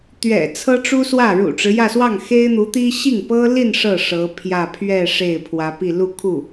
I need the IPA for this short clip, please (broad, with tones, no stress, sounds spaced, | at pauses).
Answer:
t̪ ɥ ɛ̰˨˩ t͡sʰ ɤ˥ ʈ͡ʂ u˥ s w ä˥˩ ɻ ṵ˨˩ ʈ͡ʂ ɻ̩˦ j ä˥˧ s w ɑ˥˩ ŋ x e˥ ɪ̯ n̪ u˧˥ t̪ i˥ ɕ i˥˩ ŋ p ɤ˥ l i˥˧ n ʂ ɤ˥˩ ʂ ɤ˧˥ pʰ j ä˥˧ pʰ ɥ ɛ˥˧ ʂ e˥˩ ɪ̯ pʰ w ä˧˥ p i˥˧ l u˥˧ kʰ u˥˩